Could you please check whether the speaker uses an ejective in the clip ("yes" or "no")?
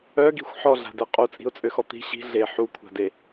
yes